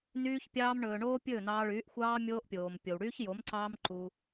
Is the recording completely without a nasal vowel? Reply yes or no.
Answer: yes